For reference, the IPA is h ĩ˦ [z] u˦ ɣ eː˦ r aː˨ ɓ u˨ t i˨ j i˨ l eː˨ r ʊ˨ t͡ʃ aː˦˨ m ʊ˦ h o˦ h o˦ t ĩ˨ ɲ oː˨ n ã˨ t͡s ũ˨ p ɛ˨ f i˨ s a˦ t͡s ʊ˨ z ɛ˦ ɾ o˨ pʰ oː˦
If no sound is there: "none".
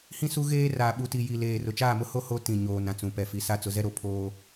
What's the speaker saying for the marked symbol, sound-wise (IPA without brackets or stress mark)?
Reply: s